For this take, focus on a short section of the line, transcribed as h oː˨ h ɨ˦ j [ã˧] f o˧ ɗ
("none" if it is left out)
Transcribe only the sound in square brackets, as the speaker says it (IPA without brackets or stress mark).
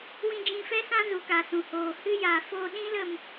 a˧